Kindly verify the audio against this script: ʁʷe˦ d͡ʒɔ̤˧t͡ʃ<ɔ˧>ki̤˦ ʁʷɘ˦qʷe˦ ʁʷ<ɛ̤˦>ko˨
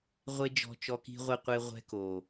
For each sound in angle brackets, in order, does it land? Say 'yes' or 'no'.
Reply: yes, yes

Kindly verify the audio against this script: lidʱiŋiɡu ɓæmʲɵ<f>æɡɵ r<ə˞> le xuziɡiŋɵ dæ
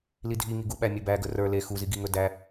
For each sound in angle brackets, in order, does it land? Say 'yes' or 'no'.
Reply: no, yes

